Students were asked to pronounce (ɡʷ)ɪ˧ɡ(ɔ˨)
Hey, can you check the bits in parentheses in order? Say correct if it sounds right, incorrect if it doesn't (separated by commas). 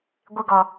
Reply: correct, correct